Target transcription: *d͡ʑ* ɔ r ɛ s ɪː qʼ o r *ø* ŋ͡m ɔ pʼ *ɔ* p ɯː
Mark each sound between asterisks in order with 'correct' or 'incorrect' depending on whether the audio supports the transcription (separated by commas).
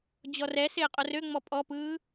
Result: correct, correct, correct